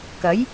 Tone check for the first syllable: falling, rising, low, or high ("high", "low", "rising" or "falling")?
rising